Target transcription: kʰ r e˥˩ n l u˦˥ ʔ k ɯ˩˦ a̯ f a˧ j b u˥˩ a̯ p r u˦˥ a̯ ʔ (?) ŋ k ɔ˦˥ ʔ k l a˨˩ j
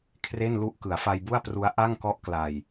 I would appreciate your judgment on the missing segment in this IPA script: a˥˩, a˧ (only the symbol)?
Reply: a˥˩